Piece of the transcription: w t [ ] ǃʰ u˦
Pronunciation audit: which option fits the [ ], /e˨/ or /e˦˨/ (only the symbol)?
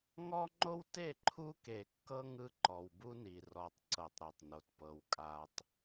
e˦˨